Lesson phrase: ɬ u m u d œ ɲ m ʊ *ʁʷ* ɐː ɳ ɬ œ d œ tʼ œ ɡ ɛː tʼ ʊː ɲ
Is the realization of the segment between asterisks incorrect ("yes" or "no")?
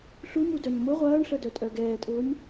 no